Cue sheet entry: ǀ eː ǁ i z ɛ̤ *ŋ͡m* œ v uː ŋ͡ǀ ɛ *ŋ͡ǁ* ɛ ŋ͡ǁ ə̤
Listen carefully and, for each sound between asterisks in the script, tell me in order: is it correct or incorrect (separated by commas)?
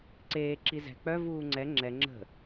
incorrect, correct